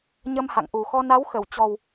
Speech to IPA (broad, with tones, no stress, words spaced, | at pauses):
ɲə˧mha̰˧˨ŋʔu˨˩xɔ˧ na˨˦wxə˧˩w t͡ɕɔ˨˩w